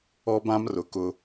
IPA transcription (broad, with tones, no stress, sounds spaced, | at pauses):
ɔ˦ b ã˦ m r ʊ˨ k ʊ˦